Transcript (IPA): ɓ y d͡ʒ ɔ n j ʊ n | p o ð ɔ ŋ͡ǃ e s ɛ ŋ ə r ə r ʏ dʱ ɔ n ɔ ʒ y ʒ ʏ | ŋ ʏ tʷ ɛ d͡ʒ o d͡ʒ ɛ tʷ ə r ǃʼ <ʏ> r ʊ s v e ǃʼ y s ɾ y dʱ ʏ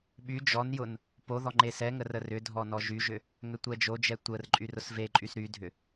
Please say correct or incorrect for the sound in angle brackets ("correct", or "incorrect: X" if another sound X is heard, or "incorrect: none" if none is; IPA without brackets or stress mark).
incorrect: y